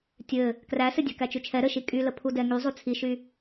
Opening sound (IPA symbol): tʲ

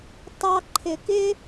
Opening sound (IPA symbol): tˤ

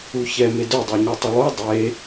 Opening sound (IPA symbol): u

